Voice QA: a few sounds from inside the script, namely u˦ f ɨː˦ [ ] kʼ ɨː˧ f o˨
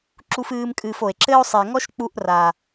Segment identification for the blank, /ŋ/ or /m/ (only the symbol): m